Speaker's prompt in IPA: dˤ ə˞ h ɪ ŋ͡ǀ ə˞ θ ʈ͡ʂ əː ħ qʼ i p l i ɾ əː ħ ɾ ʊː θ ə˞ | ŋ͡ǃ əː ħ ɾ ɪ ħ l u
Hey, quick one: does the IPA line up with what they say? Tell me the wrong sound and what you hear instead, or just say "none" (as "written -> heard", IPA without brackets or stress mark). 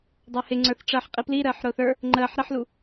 none